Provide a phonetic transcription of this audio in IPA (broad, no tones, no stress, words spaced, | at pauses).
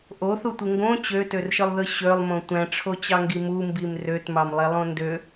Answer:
ʔoθutʷɯ ŋɡõ t͡ɕøtørʃɯlˠðɯ ɕølˠmõ tʷæ̃ʈ͡ʂʰot͡ɕɑŋɡi mumbim røtmɑmlˠelˠõ ndø